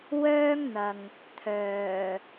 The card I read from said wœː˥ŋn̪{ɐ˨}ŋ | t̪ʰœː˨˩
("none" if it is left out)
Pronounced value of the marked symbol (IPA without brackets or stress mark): ɐ˨